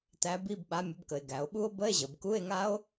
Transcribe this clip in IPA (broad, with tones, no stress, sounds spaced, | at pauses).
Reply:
t æ˨˥ b i˧˥˧ b ɓ a˨˥ mʲ ə˨˥ b k ə˩˧ e̯ ɡ æ˩˧ o̯ ɓ u˦˥ o̯ b ə˧˥˧ e̯ ʑ ə˩˧ b k u˧˥˧ e̯ ŋ a˦˥ o̯